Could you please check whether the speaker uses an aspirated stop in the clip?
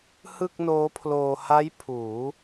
yes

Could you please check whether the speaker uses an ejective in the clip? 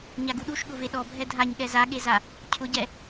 no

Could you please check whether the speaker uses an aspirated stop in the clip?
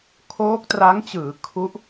yes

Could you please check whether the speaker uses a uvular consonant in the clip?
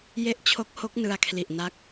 no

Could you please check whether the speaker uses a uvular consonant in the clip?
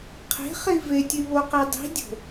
yes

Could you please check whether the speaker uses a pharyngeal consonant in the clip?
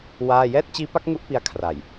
no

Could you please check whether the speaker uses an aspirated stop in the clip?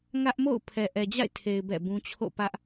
yes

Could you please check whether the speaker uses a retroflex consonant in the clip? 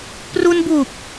no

